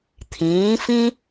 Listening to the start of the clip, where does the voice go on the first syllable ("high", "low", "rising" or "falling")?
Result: rising